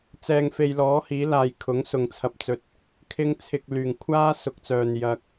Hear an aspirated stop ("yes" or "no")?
yes